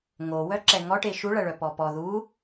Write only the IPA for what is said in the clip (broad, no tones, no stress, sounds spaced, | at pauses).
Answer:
ŋ o w œ ǁ ɛ ŋ ɔ ʈ e ʃ u ɭ ɐ ɭ œ p ɔ p ɔ ð u